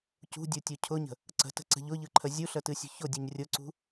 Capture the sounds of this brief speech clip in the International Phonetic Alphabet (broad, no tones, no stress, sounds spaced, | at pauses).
c ṳ dʲ u tʲ u cʰ ʊ ɲ ə̤ | ǀ ə̤ t ə̤ ǀ ə̤ ʎ ʊ ʎ ɯ ǃʰ ə zʲ u ɬ ə t ɨ sʲ ṳ ç ʊ dʲ ɨ ɲ rʲ ʊ ǀ ṳ